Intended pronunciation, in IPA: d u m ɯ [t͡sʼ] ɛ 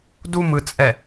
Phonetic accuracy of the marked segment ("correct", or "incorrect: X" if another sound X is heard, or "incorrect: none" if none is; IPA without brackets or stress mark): correct